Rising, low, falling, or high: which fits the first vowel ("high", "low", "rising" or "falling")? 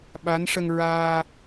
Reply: rising